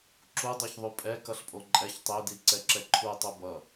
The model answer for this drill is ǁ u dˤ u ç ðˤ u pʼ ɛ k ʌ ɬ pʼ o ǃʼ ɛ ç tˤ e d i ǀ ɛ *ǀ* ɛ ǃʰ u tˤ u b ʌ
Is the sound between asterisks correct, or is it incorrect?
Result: incorrect